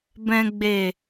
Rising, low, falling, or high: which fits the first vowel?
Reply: low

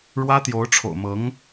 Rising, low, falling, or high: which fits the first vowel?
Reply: high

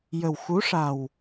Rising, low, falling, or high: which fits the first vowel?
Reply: low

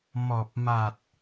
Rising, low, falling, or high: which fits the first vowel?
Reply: low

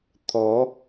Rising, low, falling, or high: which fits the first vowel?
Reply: rising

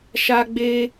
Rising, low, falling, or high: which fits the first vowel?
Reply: high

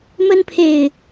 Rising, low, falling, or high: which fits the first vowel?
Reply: high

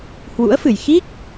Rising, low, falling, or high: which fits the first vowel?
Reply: rising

